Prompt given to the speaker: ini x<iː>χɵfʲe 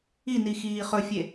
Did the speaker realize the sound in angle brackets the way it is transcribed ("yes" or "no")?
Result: yes